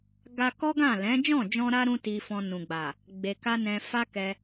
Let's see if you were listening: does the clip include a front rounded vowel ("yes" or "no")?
no